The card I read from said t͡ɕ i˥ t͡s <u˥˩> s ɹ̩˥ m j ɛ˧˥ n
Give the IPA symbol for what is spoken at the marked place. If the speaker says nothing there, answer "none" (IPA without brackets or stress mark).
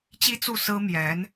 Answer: u˥˩